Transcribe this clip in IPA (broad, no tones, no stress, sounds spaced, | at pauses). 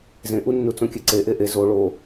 z ẽ ʔ u nː u t͡s õ kʲ ɛ ǀ e ʔ e ʔ e z o ɭ o